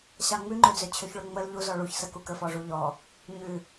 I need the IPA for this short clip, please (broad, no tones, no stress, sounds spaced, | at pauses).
ɕ ɑ ŋ͡m ʉ ŋ͡ǃ ø d͡z ø t͡ɕʰ ø ç ɭ ø ŋ͡m ə l ʎ u z ɔ ɭ u ç s ə k u k ə f ɔ ʐ u ʎ ɔ | ɲ ʉ